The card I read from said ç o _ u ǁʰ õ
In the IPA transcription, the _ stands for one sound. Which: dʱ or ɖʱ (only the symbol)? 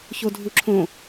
dʱ